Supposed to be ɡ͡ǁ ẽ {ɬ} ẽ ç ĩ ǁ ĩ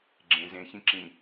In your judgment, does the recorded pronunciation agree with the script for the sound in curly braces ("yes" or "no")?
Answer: no